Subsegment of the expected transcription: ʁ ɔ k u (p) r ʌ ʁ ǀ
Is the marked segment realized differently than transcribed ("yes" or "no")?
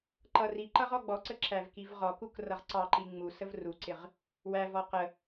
yes